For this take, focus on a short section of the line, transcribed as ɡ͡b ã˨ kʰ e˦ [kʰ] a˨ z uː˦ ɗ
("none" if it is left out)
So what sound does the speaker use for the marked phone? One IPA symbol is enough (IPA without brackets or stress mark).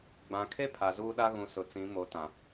pʰ